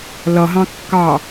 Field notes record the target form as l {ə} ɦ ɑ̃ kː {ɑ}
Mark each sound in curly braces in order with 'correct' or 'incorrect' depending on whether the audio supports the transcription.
incorrect: ʌ, correct

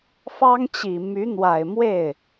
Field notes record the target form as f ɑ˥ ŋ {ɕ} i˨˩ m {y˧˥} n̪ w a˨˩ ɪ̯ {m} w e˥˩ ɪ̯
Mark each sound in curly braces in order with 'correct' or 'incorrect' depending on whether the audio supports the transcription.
incorrect: t͡ɕ, correct, correct

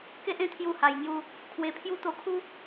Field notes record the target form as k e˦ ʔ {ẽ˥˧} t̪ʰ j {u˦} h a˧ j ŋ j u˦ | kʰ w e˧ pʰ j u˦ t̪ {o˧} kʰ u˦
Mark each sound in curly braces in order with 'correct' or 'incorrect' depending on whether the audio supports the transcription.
correct, correct, correct

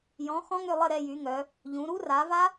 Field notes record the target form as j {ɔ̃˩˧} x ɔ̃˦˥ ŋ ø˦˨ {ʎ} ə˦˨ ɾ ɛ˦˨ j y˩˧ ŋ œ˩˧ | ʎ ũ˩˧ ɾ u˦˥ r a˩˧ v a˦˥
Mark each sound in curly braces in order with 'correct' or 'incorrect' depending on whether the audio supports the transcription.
correct, incorrect: lˠ

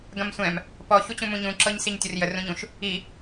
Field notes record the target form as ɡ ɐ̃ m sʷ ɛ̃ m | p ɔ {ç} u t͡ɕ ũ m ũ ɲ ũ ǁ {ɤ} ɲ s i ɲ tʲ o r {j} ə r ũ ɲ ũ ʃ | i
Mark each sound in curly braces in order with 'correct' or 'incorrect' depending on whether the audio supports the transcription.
correct, correct, correct

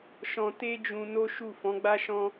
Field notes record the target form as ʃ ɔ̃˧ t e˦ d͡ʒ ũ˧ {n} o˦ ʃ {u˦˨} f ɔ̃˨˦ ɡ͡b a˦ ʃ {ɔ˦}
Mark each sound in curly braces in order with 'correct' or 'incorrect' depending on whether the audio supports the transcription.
correct, correct, incorrect: ɔ̃˦

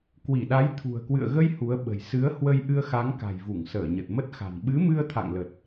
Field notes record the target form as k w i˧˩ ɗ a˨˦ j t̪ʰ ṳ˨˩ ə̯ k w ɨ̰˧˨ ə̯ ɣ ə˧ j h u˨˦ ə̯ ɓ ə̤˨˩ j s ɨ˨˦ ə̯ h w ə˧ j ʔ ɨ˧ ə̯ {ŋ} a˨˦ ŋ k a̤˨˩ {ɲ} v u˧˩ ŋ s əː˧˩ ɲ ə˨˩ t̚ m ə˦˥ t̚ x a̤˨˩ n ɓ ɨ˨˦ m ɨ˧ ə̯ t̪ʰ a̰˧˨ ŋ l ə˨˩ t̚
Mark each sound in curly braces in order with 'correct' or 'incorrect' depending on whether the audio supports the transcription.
incorrect: x, incorrect: j

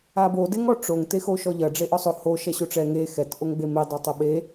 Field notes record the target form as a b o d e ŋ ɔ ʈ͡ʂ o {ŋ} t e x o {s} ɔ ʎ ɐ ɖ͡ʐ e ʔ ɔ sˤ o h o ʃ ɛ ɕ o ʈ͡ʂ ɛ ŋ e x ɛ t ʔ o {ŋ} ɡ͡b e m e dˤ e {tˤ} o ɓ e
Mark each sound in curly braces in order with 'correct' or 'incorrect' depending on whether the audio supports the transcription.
correct, incorrect: ʃ, correct, correct

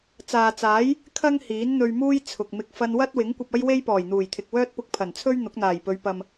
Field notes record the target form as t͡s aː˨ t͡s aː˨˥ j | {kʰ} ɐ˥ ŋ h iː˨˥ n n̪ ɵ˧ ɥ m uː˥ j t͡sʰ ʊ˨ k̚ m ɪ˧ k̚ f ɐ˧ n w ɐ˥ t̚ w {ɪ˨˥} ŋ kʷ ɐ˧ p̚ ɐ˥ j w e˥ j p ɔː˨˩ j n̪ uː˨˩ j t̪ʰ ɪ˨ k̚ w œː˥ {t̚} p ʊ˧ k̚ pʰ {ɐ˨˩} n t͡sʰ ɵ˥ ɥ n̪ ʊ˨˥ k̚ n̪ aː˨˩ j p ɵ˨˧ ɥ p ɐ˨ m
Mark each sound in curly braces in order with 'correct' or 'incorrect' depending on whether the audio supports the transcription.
correct, correct, correct, correct

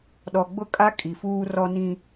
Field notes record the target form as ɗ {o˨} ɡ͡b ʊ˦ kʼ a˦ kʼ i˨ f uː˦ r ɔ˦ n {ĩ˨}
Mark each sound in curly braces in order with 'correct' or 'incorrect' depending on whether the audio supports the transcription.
incorrect: ɔ˨, incorrect: ĩ˦

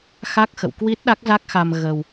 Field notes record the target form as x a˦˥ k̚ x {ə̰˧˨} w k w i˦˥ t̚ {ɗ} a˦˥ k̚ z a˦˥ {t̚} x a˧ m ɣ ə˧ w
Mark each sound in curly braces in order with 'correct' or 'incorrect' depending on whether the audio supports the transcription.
correct, correct, incorrect: k̚

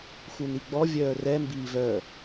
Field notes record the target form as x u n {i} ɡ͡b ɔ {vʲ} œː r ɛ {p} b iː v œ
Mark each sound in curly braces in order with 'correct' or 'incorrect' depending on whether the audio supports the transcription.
correct, correct, incorrect: m

